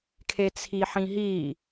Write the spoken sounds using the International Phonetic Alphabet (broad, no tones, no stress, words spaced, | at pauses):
kʰet͡sʰiħĩɦi